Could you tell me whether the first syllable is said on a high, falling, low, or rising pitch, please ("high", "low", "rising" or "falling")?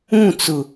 falling